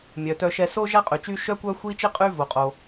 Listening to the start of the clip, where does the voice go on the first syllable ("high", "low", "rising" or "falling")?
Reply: low